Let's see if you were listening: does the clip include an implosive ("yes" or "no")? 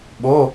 yes